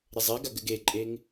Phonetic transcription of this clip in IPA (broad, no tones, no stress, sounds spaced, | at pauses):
ɾ ɪ zˤ e ɡ a ɡ ɘ ɡ e ǃʼ e ŋ